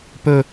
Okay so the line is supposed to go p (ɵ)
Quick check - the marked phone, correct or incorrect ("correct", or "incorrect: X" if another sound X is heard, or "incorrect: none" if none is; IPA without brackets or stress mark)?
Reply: correct